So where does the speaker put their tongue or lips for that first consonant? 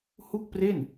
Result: throat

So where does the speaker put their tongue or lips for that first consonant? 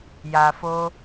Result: palate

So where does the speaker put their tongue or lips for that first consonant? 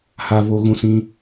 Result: throat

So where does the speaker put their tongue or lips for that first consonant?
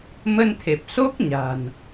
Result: lips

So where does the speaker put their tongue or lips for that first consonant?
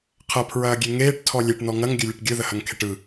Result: uvula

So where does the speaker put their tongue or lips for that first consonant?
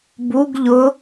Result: lips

